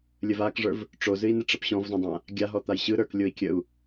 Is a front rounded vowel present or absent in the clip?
absent